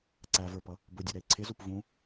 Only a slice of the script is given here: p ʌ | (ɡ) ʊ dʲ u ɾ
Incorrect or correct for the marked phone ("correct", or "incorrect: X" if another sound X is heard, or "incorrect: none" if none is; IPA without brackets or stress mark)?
incorrect: b